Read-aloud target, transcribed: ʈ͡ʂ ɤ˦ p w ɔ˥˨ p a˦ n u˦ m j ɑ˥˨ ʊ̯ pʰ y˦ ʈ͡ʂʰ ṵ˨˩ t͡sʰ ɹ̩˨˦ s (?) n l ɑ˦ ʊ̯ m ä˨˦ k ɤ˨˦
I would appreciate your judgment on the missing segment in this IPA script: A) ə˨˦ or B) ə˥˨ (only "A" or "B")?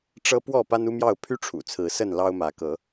B